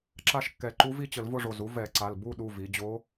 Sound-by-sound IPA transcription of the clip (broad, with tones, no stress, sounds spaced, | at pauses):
ǁ a˥˧ ʃ kː ɛ˧˩˧ ǃ u˧˥ v i˥˧ t͡ɕ ə˧˩˧ l v ʊ˥˧ ʐ o˩˧˩ z u˧˥ v ɛ˧˩˧ ǀ a˩˧˩ l b u˥˧ ɗ u˩˧˩ v i˩˧ d͡ʑ o˧˥